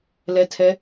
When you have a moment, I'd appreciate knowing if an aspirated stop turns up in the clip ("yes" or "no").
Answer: yes